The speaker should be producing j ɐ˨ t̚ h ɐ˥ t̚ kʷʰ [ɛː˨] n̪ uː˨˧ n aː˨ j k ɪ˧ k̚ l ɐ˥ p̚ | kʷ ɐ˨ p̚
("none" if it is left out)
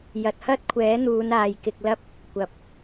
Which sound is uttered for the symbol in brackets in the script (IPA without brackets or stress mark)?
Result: ɛː˨˥